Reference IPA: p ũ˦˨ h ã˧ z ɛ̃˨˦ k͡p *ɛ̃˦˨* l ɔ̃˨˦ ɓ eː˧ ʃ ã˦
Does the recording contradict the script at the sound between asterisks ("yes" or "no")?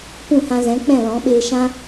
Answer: no